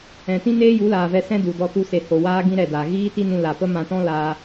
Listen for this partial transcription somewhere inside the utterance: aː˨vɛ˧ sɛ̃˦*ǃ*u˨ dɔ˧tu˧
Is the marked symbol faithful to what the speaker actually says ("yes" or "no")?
no